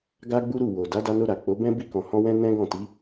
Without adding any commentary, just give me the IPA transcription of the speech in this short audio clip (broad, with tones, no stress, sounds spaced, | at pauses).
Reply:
ɡ a˦ ɡ͡b u˦ ɾ u˦˨ w o˨ d a˨˦ d a˧ n o˧ ɾ a˨ k͡p o˨˦ b ɛ̃˦ b i˧ k ɔ̃˨ h ɔ̃˧ w ɛ̃˦ n ɛ̃˦ ɡ ɔ̃˦˨ t i˨˦